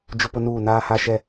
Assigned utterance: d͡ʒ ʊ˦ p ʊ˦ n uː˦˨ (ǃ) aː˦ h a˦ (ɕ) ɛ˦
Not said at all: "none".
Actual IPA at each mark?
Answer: n, ʃ

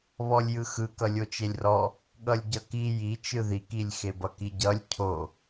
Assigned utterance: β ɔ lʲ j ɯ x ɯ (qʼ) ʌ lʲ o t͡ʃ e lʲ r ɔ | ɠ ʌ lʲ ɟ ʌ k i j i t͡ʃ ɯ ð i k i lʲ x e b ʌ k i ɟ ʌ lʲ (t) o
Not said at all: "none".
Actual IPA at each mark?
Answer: k, cʰ

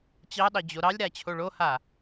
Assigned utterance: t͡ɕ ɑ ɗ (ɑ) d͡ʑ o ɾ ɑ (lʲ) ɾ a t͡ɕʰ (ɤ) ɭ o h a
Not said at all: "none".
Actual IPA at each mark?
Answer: ɑ, lʲ, o

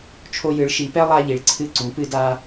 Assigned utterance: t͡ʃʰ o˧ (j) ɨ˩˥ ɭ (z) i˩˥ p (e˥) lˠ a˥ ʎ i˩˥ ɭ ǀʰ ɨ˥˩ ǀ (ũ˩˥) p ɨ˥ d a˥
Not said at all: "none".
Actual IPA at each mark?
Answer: j, ʃ, ɛ˥, ũ˩˥

